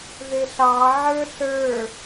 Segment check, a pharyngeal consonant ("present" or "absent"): present